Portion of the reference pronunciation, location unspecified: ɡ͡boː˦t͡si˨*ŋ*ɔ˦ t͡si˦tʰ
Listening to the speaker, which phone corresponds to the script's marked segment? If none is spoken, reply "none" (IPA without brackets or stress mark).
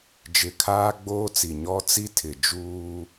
ɲ